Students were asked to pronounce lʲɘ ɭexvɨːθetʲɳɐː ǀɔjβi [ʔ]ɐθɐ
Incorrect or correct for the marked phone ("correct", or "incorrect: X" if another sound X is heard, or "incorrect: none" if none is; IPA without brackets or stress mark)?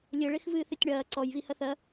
incorrect: h